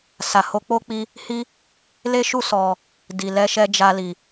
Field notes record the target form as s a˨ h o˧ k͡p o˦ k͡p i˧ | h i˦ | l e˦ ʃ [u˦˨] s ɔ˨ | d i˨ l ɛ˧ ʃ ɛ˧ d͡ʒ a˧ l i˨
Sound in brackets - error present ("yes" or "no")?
no